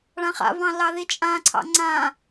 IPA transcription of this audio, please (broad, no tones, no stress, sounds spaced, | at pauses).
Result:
ɭ ã χ a̰ v ɑ̃ l ɑ ð i t͡ʃʼ ã ǀʰ ɑ̰ ŋ͡ǀ ã